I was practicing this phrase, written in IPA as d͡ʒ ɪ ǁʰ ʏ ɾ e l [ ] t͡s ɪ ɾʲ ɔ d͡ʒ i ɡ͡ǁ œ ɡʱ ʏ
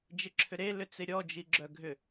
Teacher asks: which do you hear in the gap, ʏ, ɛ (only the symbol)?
ʏ